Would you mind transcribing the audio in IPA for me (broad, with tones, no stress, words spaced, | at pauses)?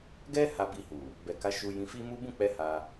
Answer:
ɡɛ˦ ha˧bi˧hu˨ | bɛ˨ka˨˦ ʃu˧jĩ˧fi˦ mu˦ bũ˦˨k͡pɛ˧ ha˧